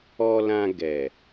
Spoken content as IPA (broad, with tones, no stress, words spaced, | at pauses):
ɔ˧lã˧ ɡɛ˨